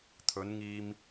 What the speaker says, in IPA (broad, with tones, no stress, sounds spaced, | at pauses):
t̪ʰ ɵ˨˧ n ŋ iː˧ m